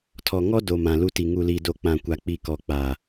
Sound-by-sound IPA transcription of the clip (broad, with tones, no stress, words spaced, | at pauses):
tʰɔ˨ŋɔ˦do˨ mã˨lu˦ti˨ ŋu˨li˨do˨ k͡pã˨kʷa˨k͡pi˨ kɔ˨k͡pa˨